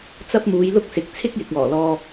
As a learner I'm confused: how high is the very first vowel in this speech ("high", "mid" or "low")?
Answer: low